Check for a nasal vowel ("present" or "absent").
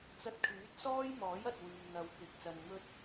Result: absent